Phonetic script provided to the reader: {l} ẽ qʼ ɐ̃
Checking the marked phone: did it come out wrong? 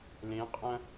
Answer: no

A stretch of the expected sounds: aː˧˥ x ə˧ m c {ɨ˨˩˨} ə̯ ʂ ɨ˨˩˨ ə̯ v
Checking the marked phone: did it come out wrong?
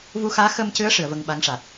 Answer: yes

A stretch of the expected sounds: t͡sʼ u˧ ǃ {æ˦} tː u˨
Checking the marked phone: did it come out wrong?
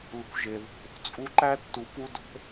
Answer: no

